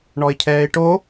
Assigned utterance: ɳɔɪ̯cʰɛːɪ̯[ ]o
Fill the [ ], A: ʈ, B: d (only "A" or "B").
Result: A